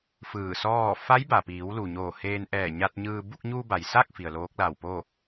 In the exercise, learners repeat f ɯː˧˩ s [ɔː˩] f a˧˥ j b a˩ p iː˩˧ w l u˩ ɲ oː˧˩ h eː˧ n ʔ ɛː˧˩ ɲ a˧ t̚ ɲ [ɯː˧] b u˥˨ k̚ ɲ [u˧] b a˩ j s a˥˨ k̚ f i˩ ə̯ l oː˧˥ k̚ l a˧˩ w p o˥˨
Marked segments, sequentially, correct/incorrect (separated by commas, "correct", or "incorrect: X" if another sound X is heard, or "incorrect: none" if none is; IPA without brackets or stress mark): incorrect: ɔː˥˨, correct, correct